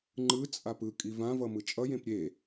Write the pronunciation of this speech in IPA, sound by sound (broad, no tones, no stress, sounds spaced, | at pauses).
ŋ͡ǃ ɯ t͡sʼ a p ɯ kʼ i v ã v ʌ m ɯ t͡ʃʼ ʌ j ẽ p ɾʲ e